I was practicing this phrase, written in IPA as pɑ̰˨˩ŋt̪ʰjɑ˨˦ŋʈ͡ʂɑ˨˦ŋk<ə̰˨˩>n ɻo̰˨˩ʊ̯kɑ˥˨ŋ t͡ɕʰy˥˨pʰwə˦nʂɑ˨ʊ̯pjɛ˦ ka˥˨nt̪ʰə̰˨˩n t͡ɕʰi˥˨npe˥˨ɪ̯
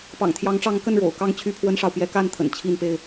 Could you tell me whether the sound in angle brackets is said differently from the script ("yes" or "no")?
yes